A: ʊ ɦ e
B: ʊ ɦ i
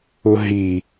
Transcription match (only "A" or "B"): B